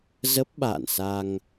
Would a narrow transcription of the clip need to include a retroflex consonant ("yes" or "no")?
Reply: no